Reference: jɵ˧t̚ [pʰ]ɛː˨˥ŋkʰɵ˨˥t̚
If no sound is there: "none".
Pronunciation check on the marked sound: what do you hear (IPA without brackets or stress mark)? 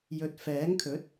f